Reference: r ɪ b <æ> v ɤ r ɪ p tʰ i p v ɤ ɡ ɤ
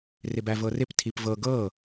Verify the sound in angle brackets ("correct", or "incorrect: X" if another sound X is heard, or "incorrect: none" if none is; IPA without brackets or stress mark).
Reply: correct